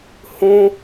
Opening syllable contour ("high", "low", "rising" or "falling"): high